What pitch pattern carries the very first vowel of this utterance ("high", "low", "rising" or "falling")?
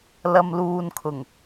low